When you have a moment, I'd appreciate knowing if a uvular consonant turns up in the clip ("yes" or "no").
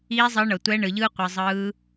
yes